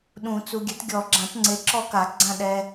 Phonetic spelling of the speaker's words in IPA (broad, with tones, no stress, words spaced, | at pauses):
ɗũ˨˩˦t͡su˨ɡʲɛ˨˥t ɡʲɔ˨˩˦ɡ͡ǁã˨˩˦tŋ͡ǀe˨˥ ǁɔ˦ka˨˩˦ɡ͡ǀã˦˨ ɗɛ˨